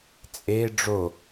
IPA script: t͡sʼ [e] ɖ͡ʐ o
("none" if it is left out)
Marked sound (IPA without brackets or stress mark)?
e